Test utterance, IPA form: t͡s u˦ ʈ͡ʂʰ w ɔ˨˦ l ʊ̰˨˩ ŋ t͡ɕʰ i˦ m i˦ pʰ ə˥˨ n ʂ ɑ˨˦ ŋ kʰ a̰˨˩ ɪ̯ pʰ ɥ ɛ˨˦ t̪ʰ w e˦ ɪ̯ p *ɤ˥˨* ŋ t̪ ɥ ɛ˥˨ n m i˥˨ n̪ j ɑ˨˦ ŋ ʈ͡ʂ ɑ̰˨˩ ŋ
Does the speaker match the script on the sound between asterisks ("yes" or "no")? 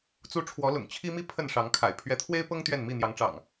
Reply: no